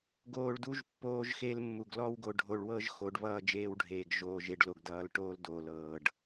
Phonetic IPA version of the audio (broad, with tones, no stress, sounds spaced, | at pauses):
ɡ oː˨ ɭ d u˦ ʒ pː oː˦ ʒ x e˦ l mː u˨ ɡ l ɔ˦ w ɡ o˨ ɖʱ o˨ ɭ w ɤ˦ ʒ x o˨˦ ɖ β ʌː˦˨ d͡ʒ eː˦ w ɖʱ eː˨ ɡ ʒ oː˨ ʒ e˨ ɖ l o˨ ɡ d ʌː˨ l ʈ oː˦ l d oː˨ l ɤː˨ ɖ